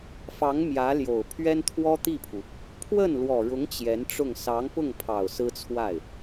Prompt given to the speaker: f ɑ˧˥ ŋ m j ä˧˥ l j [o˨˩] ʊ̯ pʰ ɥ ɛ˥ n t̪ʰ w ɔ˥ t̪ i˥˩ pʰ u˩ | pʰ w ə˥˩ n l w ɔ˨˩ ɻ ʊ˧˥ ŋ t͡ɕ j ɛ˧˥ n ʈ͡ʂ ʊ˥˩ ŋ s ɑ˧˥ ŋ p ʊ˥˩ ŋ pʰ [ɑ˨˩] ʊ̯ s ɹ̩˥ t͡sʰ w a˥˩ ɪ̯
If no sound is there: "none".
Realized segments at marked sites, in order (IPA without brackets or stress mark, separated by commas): o˨˩, ɑ˨˩